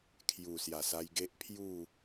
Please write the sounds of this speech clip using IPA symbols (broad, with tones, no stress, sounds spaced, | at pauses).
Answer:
kʰ j u˨˩ s j a˨˩ s a˧ j ɡ e˦ ʔ pʰ j u˥˧